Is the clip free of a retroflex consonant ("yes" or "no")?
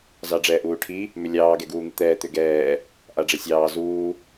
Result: no